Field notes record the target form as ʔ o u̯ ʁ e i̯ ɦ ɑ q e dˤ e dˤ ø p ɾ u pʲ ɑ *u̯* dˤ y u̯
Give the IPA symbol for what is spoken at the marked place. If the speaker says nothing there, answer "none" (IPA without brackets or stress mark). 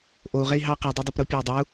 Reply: u̯